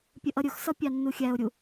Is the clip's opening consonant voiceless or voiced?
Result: voiceless